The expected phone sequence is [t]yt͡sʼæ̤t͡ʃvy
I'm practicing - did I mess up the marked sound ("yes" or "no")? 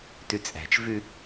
no